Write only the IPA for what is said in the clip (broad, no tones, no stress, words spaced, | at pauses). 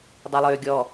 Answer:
dˤœlˠøːɡʲɔ